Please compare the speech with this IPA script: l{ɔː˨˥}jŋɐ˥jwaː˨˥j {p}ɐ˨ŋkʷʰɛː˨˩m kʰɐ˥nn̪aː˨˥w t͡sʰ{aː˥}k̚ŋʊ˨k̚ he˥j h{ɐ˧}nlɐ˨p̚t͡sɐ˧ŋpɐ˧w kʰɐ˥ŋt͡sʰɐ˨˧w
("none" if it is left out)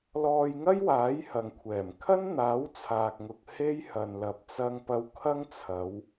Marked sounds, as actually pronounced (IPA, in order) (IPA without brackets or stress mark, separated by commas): ɔː˧, h, aː˨, ɐ˨